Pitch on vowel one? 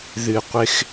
low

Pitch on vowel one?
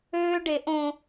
high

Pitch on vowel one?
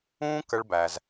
high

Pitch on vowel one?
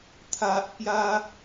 low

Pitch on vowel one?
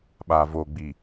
low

